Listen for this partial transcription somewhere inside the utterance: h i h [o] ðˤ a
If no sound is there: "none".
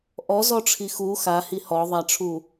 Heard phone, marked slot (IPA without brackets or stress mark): ɔ